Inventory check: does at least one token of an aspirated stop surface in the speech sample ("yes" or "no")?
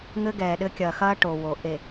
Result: no